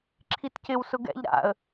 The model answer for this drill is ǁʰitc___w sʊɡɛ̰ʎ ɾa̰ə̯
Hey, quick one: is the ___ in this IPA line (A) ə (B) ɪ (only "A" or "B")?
B